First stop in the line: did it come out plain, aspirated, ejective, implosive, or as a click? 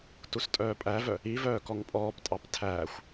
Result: plain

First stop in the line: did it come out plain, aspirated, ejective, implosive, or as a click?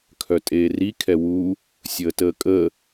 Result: aspirated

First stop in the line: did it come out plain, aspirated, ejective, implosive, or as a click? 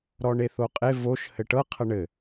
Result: ejective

